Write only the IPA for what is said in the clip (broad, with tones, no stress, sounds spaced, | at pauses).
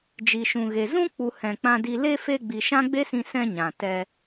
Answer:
d͡ʒ i˨ ʃ ũ˨ ɣ e˨ z ũ˦ k͡p u˨ h ɛ̃˨ k͡p ã˧ d i˧ l e˧ f e˧ ɡ͡b i˨ ʃ ã˦ ɡ͡b e˦ s ĩ˧ s ɛ̃˧ ɲ ã˨ t ɛ˧